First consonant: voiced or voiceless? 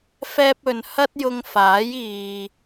voiceless